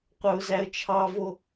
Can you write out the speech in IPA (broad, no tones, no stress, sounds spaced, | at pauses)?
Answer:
qʷ œ ʊ̯ z æ ə̯ t͡ʃʰ ɑ v o